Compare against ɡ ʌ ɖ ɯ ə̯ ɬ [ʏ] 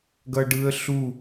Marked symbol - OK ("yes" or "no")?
no